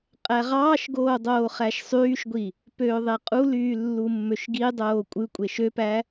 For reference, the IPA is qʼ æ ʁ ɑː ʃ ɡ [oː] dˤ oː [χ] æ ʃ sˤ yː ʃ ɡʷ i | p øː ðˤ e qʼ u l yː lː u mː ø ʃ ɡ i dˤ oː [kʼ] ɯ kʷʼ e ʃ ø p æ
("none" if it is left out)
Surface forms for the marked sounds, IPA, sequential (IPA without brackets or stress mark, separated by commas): oː, χ, kʷʼ